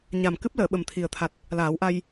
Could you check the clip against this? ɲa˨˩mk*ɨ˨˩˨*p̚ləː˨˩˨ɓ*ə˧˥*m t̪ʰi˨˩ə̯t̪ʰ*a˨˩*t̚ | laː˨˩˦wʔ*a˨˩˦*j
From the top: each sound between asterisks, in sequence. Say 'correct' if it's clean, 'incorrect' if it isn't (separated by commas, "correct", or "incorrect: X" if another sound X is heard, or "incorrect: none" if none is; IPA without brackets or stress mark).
incorrect: ɨ˦˥, incorrect: ə˨˩, correct, incorrect: a˧